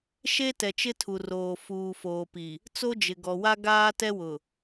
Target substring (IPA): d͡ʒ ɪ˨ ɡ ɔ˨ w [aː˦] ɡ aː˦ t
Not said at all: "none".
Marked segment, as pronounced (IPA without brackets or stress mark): a˦